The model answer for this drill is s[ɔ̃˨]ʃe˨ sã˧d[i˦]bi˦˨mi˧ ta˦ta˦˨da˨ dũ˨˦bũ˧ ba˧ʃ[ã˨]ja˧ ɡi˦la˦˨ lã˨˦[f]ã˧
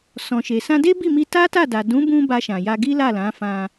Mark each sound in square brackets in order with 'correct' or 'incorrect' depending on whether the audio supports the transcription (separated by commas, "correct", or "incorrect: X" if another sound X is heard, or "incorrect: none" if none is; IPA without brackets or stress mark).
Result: correct, incorrect: e˦, correct, correct